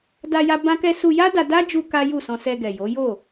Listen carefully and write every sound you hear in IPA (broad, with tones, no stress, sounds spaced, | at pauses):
d a˧ j a˧ b ã˦ k ɛ˦ s u˧ j a˦ d a˧ d a˦ d͡ʒ u˧ k a˦ j u˦˨ s ɔ̃˧ s ɛ˧ ɡ ɛ˨ j o˨˦ j o˦˨